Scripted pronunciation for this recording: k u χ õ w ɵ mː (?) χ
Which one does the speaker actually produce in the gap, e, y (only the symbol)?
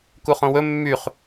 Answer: y